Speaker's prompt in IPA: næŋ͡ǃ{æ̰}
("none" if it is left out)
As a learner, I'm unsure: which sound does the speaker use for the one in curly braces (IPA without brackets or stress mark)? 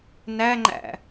æ̰